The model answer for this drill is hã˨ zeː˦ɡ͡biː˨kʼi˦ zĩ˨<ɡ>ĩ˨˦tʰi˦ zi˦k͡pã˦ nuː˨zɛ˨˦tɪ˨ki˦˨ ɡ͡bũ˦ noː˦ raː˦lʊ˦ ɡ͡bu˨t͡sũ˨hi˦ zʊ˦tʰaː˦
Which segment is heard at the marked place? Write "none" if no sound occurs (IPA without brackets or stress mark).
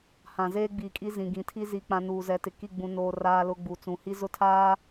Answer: ɡ